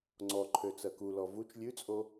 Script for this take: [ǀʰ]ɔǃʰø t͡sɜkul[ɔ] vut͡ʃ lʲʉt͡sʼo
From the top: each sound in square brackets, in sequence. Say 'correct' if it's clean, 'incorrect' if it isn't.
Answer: incorrect, correct

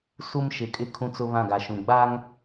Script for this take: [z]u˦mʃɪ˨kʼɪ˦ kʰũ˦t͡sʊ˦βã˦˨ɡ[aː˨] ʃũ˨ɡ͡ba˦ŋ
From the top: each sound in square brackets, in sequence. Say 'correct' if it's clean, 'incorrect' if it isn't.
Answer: incorrect, incorrect

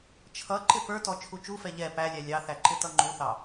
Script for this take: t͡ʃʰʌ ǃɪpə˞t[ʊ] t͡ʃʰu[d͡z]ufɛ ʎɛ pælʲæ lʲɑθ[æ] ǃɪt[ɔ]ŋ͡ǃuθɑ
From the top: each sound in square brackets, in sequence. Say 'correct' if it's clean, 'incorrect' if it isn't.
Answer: incorrect, incorrect, correct, incorrect

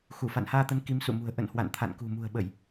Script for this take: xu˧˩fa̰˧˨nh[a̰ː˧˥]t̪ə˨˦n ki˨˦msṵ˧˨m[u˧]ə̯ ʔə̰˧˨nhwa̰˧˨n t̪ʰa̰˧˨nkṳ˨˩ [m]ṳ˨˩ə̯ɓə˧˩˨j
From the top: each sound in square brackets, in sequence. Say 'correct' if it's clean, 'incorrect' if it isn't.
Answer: incorrect, incorrect, correct

